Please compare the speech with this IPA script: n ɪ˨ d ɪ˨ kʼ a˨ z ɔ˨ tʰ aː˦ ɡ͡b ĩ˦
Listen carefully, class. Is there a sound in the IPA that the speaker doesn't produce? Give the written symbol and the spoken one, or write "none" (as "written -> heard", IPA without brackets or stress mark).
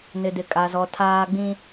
none